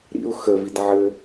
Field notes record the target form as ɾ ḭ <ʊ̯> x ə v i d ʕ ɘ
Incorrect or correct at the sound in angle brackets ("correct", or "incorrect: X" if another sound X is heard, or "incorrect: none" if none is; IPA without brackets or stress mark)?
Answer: correct